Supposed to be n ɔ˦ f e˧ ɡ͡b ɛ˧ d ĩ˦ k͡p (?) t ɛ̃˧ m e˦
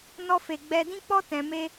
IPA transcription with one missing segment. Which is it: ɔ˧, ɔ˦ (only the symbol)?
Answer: ɔ˦